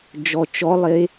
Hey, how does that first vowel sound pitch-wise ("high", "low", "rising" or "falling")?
low